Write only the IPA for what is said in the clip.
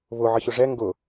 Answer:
βʊ ʕəçʊʐɛ ŋɡʊ

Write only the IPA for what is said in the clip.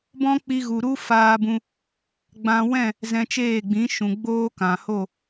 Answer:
bɔ̃˦k͡pi˧ ɣu˨ɾu˦ faː˧bũ˧ | ɡ͡bã˧wɛ̃˦˨ | zɛ̃˧t͡ʃeː˦˨ ɡ͡bĩ˨˦ʃũ˨ ɡ͡boː˦kã˨ho˦˨

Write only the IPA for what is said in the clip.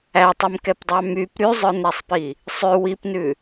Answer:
ætˤimkɛpdˤɑ myp ɾyzˤœnɾæsˤpi | sˤʉ wipnʉ

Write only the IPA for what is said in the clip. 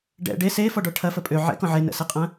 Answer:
ɖɛ̰ ɖe sefɔɖɔ ʈʰɐfə pʼø ʕɛ̰kɔ̃ ʕenə̰seqʼɐ̃

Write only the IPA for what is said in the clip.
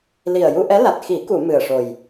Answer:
li˨˩ə̯ju˧ʔɛ˧˥la˨˩t̚ xi˨˩˦ku˨˩˨ mɨ˨˩ə̯ʂo˨˩j

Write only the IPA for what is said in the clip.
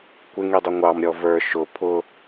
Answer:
kʷɪŋidˤʊ ŋʷɑmɾʲɔ və˞ ʃʊ pʰʊ

